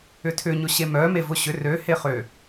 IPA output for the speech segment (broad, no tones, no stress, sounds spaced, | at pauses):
ʏ tʰ ʏ ɲ ʊ ɕ e m œ m e v ʊ ɕ ʏ r ø h e χ ø